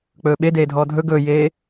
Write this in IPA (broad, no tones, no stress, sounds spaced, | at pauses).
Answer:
k͡p ɵː ɓ e d eː dʱ ɔː dʱ ɵ ɡ ɵː j eː